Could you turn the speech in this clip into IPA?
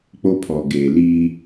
k͡p o˦ pʰ ɔ˨ ɡ eː˨ l iː˦

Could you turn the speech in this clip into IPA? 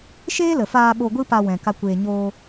ʃ eː˦ l ə˨ f aː˧ ɓ o˧ ɡʷ ɨ˦ p a˧ w ɛ̃˨ k a˧ kʷ eː˧ ɲ oː˧

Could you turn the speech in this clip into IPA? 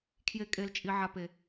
kʰ j e˦ kʼ e˦ l t͡ʃʼ i˦ ʕ a˦ p e˧

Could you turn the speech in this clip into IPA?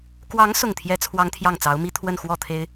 k w ɑ˧˥ ŋ s ʊ˥˩ ŋ t̪ʰ j ɛ˥ t͡sʰ w ɑ˥ ŋ t̪ʰ j ɑ˥˩ ŋ t͡s ɑ˧˥ ʊ̯ m i˥ t̪ʰ w ə˥˧ n x w ɔ˥˩ t̪ʰ e˥ ɪ̯

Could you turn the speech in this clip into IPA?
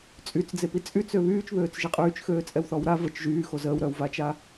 t͡sʼ y t͡s d͡z e p i t͡sʼ y t͡s ø β yː t͡ʃ β øː t͡s ʒ e qʼ yː t͡ʃ x øː t͡sʼ ɛ w θ ɔ w ɾ a v ə t͡ʃ ʒ yː x o z əː w ɾ œ w v a t͡ʃ a

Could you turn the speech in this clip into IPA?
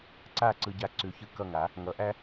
ǀ a˥˩ ǀ ɯ˧ ɟ a˧ ǀ ʉ˩˥ ç ɯ˧ k ʌ˥˩ ŋ a˩˥ | ŋ ʌ˩˥ ʔ æ˥

